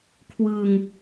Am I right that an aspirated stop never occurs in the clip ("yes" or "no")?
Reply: no